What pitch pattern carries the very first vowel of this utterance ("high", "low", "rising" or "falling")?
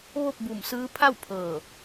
falling